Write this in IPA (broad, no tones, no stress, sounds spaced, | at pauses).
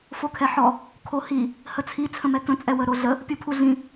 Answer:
f o kʰ ɛ ħ ɔ | kʰ o h i | h ə t͡sʰ i t͡sʰ ə̃ m ɛ k ə̃ t͡sʼ ɛ w ə ɾ o ɮ ə | pʲ u pʰ u ɮ ĩ